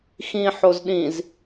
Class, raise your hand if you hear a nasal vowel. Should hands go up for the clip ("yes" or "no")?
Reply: yes